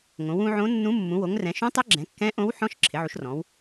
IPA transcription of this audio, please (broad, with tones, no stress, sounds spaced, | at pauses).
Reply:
ŋ õ˩˧ w ũ˩˧ ʕ õ˧˥ nː ũ˧˥ mː ũ˩˧ w o˩˧ ŋ r ɛ̃˩˧ ʃ ũ˧˥ tˤ ɪ˧˥ ɡ͡ǁ ɛ̃˩˧ kː ɛ̃˧˥ ʔ õ˧˥ w ħ ɔ̃˧˥ ʃ ǁʰ ɪ˩˧ ʕ u˩˧ ʃ r ɔ̃˩˧ w